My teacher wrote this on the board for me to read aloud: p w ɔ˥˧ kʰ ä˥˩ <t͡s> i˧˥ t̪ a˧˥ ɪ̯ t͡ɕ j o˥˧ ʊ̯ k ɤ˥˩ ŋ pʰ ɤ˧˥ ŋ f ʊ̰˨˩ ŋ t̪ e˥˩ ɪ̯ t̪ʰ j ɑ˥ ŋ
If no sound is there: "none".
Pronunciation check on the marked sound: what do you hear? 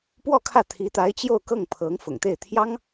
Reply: t̪ʰ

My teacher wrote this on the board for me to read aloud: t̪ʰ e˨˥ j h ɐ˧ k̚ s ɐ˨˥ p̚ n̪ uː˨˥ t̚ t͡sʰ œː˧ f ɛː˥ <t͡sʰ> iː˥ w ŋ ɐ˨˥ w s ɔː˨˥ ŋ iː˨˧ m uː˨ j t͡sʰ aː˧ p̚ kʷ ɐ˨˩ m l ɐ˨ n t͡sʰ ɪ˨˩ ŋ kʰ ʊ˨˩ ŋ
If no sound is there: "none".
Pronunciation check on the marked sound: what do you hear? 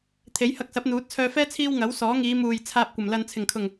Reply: t͡sʰ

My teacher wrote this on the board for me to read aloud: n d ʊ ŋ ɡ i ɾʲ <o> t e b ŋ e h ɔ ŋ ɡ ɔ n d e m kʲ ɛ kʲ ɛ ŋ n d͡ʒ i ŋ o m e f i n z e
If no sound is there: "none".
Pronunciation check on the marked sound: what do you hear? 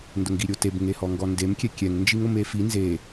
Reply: o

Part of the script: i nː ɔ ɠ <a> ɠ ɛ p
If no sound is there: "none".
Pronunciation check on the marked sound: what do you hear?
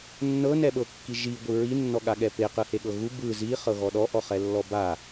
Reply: a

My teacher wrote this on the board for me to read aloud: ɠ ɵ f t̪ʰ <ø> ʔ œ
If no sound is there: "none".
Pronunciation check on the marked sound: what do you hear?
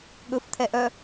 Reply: ɛ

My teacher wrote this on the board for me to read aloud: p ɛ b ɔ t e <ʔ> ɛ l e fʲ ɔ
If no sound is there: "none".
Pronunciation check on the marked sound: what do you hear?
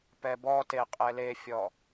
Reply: qʼ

